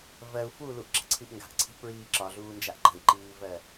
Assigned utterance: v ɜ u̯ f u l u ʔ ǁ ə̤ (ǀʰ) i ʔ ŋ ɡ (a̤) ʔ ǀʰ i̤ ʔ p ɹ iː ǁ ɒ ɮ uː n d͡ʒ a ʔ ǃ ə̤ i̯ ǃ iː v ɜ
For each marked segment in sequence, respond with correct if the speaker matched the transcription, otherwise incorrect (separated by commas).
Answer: correct, correct